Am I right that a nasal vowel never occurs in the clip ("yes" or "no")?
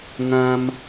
no